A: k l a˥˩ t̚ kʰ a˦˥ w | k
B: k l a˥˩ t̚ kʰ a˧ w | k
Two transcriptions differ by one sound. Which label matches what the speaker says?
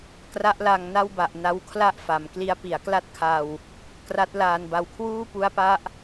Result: B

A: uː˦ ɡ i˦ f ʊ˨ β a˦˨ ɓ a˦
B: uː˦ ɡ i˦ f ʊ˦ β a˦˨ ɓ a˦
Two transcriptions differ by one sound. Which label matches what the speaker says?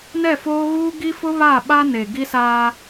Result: B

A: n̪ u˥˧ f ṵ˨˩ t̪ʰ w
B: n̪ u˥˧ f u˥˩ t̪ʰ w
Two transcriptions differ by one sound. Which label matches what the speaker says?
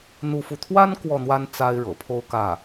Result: B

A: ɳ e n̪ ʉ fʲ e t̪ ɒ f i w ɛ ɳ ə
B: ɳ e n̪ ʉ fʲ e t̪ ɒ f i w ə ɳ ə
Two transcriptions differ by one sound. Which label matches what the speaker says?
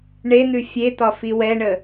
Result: A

